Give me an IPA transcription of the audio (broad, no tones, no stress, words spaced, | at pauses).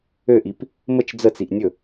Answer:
øʔip | mət͡ʃ d͡zət͡siʔ nʲɵ